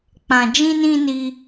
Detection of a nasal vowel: present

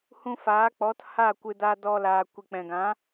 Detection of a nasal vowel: present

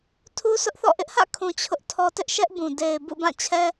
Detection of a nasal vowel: present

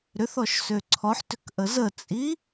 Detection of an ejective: present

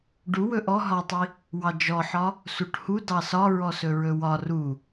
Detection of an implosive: absent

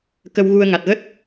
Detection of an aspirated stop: absent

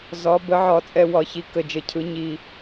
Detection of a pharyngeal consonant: present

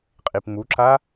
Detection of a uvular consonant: present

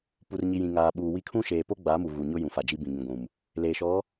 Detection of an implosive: present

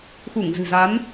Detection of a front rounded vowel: absent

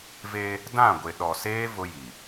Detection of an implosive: present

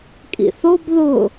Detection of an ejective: present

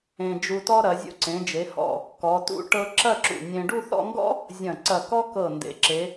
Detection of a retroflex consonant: present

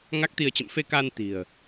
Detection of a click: absent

